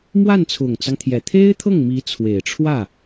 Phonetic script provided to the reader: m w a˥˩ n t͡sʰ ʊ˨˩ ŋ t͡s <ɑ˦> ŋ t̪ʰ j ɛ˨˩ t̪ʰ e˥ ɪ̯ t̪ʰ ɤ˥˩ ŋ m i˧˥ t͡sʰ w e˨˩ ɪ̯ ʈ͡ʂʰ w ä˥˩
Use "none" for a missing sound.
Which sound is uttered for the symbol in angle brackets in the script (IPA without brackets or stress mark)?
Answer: ɑ˦